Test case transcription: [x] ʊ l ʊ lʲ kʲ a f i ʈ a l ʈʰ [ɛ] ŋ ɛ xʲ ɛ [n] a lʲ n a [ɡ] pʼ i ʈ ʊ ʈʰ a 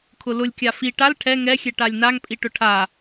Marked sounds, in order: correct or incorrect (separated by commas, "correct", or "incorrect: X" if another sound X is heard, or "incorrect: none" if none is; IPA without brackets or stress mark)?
incorrect: kʰ, correct, incorrect: ʈ, incorrect: ŋ